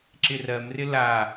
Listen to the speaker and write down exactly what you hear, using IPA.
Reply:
ǁ ɪ r ɜ m r ɪ l a

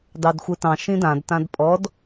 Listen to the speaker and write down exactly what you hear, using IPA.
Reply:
d ɑ d xʷ ɯ t ɑ̃ ʃ ĩ d ã d t ã d pʼ ɔ d

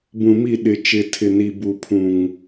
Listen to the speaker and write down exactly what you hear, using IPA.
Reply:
b ũ˨ m i˦˨ ɗ ɪ˨ t͡ʃ ɪ˨ tʰ ɪ˨ n i˨ b u˨ pʰ ũ˨ ŋ

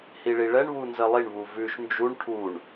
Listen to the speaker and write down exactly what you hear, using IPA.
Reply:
h i ɭ i ɭ ɛ ɳ β u n z ə lˠ i ɳ β u v ʉ ʃ n d͡ʒ u ɳ ʈʰ u ɳ

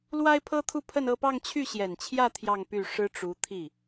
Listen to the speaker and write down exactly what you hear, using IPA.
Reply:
l w a˥ ɪ̯ pʰ ɤ˥ t̪ʰ u˥˧ pʰ ə˥˧ n ɤ˥˧ p ɑ˥˧ ŋ t͡ɕʰ y˥˩ ɕ j ɛ˨˩ n t͡ɕʰ j ä˥˧ t̪ʰ j ɑ˥˧ ŋ p y˥˩ ʂ ɻ̩˥ ʈ͡ʂ u˧˥ t̪ʰ i˥˩

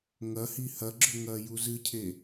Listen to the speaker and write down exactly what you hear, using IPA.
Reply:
ŋ ɐ h i h ɐ ɡ͡ǁ ɵ ŋ ɐː j u z ɨ cʰ e

